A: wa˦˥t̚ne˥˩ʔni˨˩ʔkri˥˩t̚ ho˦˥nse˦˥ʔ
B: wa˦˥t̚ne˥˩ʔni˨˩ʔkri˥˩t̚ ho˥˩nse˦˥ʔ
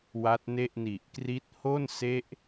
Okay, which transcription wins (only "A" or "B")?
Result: B